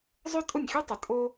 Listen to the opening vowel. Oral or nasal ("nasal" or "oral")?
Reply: oral